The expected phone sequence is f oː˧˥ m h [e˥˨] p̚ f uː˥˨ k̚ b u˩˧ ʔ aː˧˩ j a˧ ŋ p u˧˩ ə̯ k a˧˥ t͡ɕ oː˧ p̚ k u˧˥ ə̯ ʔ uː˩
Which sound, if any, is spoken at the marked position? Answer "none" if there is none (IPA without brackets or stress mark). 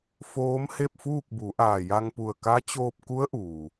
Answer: e˥˨